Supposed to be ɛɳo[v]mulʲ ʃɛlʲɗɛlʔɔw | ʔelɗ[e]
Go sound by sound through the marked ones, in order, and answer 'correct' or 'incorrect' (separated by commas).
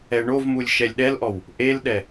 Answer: correct, incorrect